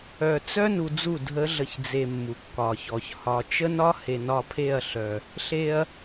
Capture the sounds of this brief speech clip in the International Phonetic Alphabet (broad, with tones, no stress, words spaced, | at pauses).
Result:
œ˧ t͡sœ˦ nu˧d͡zu˦˨ dʱə˨˦ɮə˨ç d͡ze˧mːu˨kːɒ˨çɔ˨ç hɒ˨t͡ʃə˦nɒ˦ he˨nɒ˧pʰe˦˨ɐ̯ɬœ˨ | ɬe˧ɐ̯